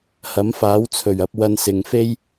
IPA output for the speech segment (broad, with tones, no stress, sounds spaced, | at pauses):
h ɐ˨˥ m f aː˨˥ w t͡sʰ ɵ˨˩ ɥ ɐ˧ p̚ w ɐ˧ n s ɪ˨ ŋ f e˥ j